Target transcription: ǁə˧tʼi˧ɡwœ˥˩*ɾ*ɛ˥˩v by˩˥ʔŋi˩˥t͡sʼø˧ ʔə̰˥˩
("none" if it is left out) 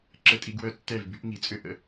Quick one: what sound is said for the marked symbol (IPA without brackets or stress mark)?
tː